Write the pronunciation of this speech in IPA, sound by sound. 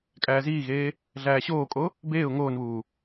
kʼ æː z iː ɣ eː | ɮ æː ɕ oː kʼ o | b eː ʊ̯ ŋ oː n β uː

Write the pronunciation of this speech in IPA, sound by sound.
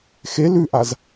x e l ʉ ʔ a z

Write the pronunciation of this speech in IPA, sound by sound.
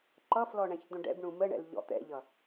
ǃ ʌ f l ɔ ɳ ɛ̃ ç d̪ õ ɖ ɛ̰ b ɳ ũ m ə ɳ ɛ̰ l ʎ ɔ̰ t̪ ɛ̰ ʎ ʌ

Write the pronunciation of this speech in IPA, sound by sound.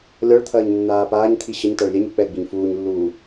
lʲ ɔ ɭ t̪ʰ ɐː ɲ nː aː p aː ɲ t̪ʰ i ɕ ə ɲ t a ɭ lʲ ɛ ɲ ɨ k͡p ɛ ɡ͡b i ɲ f uː ɲ lː uː

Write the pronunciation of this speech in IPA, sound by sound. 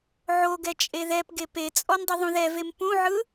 ʕ o ɡ ɛ t͡ʃʼ e ð ɛ p ɡ e p e t͡sʼ ɔ n dˤ ɯ ðˤ ũ ð ɛ v e m p ũ ʕ ɯ

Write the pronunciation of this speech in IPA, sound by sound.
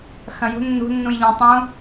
x ɐ̃ j ṳ nː ṳ nː ũ j ʎ ũ tˤ ũ

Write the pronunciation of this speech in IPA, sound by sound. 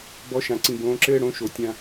b ɔ˨˦ ʃ ã˨ ǀ ĩ˨ b õː˨˦ ǁ ɘː˦ ɽ õ˨˦ ʃ o˨ tʲ ã˦

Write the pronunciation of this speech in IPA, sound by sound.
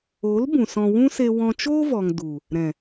o˨˦ l b ũ˨ s ɔ̃˧ w ũ˦ s e˧ w ɔ̃˧ t͡ʃ oː˦ v ɔ˨ ŋ d u˨ | ɾ ɛ̃˨

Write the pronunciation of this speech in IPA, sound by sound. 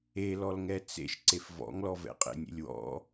e l ɔ l ŋ ɛ t͡s ḛ ʃ ǀ e f v ɔ̰ ŋ l ɔ v ɛ̰ qʼ ḛ nʲ ḛ lʲ w ɔ̰

